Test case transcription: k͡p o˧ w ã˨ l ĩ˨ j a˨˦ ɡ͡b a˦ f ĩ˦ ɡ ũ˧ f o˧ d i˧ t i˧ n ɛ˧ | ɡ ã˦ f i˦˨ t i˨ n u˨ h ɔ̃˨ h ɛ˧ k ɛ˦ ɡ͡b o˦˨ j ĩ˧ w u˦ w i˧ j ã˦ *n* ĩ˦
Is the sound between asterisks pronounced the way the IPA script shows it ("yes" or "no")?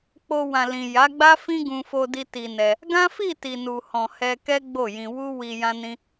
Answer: yes